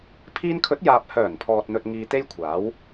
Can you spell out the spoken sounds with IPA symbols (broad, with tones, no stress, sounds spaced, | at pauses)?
pʰ iː˧ n kʰ ɵ˨˥ t̚ j aː˨ p̚ h œː˨˩ n pʰ ɔː˨ t̚ n̪ ɵ˨ t̚ ŋ iː˧ t̪ e˥ j kʷʰ aː˨˥ w